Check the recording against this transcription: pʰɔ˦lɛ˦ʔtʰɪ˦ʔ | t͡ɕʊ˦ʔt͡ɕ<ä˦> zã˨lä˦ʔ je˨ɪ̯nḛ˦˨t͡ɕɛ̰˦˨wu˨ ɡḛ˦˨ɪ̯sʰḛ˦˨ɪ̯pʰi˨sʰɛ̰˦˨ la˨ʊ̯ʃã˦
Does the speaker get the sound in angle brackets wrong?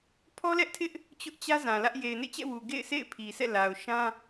no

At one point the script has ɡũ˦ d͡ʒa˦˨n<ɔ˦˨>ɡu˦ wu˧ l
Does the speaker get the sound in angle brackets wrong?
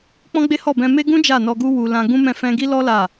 yes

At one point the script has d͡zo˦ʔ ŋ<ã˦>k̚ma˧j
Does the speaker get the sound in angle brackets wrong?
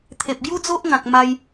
yes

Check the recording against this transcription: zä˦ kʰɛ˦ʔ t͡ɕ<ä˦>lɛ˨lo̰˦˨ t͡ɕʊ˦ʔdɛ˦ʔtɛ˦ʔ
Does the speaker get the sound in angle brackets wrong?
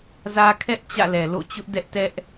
yes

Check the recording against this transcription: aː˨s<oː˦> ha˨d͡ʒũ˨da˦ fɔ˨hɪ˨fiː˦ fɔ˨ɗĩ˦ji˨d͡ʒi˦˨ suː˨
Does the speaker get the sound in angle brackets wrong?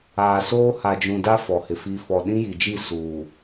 no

